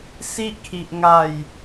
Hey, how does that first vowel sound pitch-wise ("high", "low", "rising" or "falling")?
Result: high